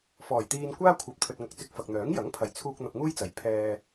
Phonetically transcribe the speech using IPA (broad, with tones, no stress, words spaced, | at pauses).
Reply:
fɔː˨˩jt̪iː˧nkʷaː˥kʷʰɐ˨˥p̚ t̪ʰɵ˧t̚ŋɐ˧k̚t͡sɪ˧k̚ fɐ˨k̚n̪œː˨˥ŋ jɐ˨˥ŋpʰɐ˨jt͡sʰuː˧k̚ n̪ɐ˧p̚ŋuː˥jt͡sɐ˨˥j pʰɛː˧